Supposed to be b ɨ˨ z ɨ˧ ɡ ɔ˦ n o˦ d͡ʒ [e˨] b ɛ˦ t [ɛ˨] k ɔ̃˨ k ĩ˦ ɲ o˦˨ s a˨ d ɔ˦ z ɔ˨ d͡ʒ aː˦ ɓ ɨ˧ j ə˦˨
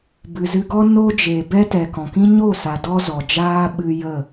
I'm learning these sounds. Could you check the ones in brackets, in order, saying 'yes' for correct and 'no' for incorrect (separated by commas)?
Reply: yes, yes